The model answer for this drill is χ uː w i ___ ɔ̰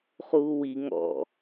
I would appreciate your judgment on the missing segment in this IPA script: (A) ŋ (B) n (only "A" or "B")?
A